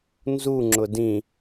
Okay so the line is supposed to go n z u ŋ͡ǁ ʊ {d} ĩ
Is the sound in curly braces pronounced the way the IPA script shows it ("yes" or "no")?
yes